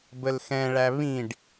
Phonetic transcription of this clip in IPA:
b ə l x ɛ̃ ɭ æ β ĩ ɖ

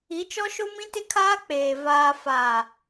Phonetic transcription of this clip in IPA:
i˨˦ t͡ʃ ɔ˦ ʃ o˦ m ĩ˦ t ɪ˦ kʰ aː˦ k͡p eː˨ v aː˨ f a˨

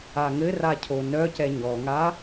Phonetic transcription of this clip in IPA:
a ŋ ɘ r a cʰ o n œ c ɛ ɲ ɔ ŋ a

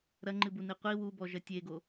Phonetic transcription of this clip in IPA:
ɾ ɐ ŋ͡ǃ ɨ b u n i qʷ i w u b ɔ ʒ ɐ tʲ e ɡ o

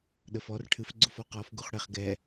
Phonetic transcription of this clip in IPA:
ɗ ə f ɔ r ʈʰ ɨ f ɡ͡ǀ u f ɔ q ɔ f ɡ u χ ɽ e χ ɡ ɛ

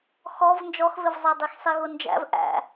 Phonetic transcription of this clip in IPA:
x ɔ v n d͡ʒ ɔ x v ɪ v zˤ æ dˤ i x sˤ i ɣ ʊ n d͡ʒ æ̰ v ʔ æ̰

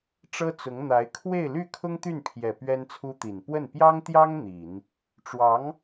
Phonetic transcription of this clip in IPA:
ʈ͡ʂ ɤ˥ t͡s ʊ˧˥ ŋ n̪ a˧˥ ɪ̯ kʰ w e˥˧ ɪ̯ l y˥˩ kʰ ʊ˥ ŋ t̪ y˥˩ n pʰ j ɛ˨˩ p ɥ ɛ˥ n t͡sʰ u˥ t̪ i˨˩ n p w ə˥˩ n p j ɑ˥ ŋ t̪ j ɑ˥ ŋ n̪ i˨˩˦ n | ʈ͡ʂ w ɑ˧˥ ŋ

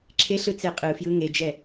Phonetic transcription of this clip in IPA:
ǁʰ e ɬ ɯ t͡s e qʼ ɯ f j ɯ ŋ e d͡ʒ ɛ

